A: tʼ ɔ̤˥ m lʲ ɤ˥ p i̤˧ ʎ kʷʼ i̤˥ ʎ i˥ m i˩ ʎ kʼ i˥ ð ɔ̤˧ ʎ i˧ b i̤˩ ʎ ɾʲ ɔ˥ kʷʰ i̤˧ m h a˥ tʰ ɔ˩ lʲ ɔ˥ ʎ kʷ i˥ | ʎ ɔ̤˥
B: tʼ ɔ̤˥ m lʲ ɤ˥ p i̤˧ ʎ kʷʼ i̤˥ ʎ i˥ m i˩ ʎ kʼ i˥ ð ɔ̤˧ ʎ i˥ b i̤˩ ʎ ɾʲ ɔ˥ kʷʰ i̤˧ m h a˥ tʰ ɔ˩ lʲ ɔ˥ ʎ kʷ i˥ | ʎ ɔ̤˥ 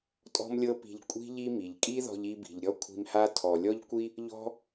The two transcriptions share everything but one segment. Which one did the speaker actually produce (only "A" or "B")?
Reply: A